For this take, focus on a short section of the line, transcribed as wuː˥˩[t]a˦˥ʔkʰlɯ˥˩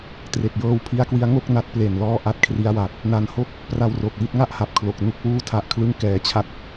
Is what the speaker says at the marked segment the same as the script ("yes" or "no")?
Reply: no